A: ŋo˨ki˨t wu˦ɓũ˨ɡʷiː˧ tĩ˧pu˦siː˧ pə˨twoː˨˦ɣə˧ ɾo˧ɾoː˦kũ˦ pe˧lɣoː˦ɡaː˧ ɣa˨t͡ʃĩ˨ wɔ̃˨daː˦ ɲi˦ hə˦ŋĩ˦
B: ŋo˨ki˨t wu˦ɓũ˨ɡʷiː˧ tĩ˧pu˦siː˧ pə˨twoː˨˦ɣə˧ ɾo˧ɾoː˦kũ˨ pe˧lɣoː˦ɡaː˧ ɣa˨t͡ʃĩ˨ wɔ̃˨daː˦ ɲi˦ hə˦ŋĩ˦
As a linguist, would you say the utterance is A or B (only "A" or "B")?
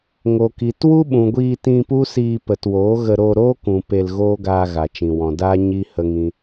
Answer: B